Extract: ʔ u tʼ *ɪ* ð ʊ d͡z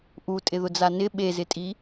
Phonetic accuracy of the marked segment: correct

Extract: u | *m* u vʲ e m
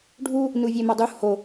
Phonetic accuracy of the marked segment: incorrect: n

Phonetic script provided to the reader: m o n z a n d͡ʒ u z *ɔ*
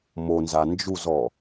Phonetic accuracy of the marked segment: correct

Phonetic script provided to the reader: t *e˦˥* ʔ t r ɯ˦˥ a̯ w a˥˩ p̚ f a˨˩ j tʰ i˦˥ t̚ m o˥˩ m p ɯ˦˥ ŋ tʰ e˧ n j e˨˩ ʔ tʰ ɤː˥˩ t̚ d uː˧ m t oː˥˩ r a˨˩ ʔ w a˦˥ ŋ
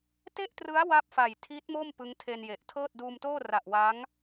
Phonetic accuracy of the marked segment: incorrect: e˥˩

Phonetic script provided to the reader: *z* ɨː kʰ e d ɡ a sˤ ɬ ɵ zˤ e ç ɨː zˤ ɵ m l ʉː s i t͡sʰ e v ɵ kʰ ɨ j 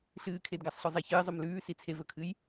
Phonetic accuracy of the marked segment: incorrect: ɬ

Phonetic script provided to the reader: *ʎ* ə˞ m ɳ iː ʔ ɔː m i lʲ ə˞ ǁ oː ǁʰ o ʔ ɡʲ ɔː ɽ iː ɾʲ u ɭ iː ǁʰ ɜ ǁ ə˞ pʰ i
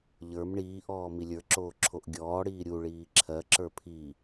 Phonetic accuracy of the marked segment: correct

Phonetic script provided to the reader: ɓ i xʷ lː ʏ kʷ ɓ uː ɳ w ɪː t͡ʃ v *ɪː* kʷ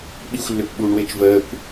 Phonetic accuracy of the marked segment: incorrect: əː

